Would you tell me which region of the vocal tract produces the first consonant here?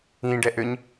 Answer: retroflex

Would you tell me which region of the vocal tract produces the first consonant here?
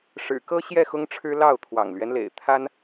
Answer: retroflex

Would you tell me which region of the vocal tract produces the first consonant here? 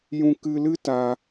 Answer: palate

